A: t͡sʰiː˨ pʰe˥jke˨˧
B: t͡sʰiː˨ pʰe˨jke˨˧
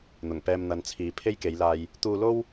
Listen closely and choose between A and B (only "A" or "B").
A